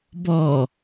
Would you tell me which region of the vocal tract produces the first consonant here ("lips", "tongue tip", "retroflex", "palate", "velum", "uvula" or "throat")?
lips